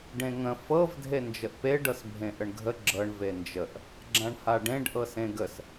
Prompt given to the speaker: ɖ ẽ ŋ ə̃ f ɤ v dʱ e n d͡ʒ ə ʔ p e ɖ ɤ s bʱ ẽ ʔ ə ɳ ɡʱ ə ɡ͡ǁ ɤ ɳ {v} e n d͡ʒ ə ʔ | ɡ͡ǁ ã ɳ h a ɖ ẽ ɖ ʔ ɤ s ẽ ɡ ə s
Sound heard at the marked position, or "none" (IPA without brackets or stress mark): v